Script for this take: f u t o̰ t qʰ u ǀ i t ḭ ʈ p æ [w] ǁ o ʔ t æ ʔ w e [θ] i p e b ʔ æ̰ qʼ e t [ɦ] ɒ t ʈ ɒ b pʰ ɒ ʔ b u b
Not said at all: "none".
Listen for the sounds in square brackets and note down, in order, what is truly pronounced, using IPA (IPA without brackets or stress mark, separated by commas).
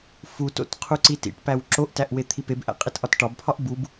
w, t̪ʰ, ʔ